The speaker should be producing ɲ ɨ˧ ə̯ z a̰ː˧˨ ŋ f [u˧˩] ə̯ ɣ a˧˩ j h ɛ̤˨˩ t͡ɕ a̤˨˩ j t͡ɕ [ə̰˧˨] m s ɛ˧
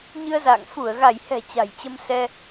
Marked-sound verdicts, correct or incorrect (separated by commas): correct, incorrect